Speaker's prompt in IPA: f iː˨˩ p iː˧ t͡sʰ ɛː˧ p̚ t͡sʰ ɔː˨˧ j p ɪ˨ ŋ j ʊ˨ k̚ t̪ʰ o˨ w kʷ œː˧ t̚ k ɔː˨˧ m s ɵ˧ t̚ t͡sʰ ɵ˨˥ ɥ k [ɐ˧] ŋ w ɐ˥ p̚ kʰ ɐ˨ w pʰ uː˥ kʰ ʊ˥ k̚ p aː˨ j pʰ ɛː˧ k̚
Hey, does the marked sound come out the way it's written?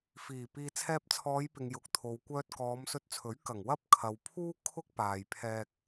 no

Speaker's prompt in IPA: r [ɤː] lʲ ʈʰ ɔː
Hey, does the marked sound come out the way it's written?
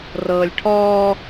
yes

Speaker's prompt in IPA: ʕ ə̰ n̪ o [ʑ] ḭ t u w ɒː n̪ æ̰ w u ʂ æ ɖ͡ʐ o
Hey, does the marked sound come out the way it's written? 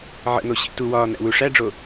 no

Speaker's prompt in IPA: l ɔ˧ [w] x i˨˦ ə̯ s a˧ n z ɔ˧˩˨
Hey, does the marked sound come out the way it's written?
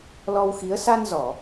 yes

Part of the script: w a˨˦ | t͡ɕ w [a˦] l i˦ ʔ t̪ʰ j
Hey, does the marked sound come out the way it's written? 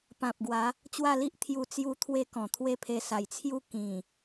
no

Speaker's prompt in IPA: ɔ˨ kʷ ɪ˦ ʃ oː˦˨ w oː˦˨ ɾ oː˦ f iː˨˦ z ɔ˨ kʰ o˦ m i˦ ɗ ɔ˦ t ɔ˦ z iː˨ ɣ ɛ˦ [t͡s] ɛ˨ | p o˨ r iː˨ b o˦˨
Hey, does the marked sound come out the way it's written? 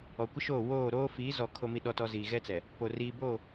yes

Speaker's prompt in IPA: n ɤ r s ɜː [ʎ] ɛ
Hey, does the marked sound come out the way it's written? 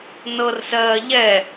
yes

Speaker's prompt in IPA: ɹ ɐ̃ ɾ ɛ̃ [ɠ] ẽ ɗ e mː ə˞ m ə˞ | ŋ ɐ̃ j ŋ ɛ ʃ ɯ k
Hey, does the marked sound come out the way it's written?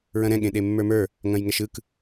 yes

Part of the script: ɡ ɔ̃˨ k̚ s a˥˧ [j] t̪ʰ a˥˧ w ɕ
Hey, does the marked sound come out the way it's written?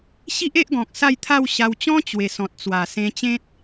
yes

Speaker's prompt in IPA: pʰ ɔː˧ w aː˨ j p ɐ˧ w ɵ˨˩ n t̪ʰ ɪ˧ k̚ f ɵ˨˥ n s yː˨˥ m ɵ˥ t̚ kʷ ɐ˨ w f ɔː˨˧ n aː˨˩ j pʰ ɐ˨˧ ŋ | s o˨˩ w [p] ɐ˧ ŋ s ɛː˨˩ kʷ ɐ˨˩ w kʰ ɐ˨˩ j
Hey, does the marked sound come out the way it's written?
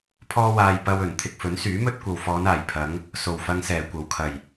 no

